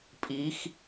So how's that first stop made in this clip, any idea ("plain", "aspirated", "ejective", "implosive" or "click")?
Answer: ejective